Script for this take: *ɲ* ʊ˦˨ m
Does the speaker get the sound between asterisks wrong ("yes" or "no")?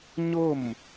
no